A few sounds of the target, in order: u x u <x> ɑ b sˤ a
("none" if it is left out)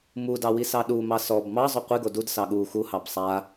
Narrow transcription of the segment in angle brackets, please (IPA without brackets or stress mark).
h